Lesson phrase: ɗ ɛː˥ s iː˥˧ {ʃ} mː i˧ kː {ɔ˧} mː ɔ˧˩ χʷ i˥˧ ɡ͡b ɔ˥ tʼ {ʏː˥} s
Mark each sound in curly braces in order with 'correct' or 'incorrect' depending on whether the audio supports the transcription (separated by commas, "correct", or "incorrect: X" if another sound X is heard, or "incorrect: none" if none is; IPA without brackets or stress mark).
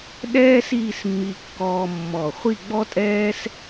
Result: incorrect: s, incorrect: ɔː˧, incorrect: ɛː˥